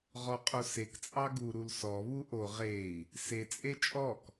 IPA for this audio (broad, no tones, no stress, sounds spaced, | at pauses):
ʁ ɔ qʼ o s e k t͡sʼ ɑ ɡ u ɾ u l s ɔ β u ʔ o ʁ e i̯ | s e t͡sʼ e t͡ʃʼ ɔ k